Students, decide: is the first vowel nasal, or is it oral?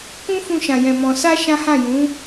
nasal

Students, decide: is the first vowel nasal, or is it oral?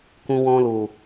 nasal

